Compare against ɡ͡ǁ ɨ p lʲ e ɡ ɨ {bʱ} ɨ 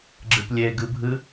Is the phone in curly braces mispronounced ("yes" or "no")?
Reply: no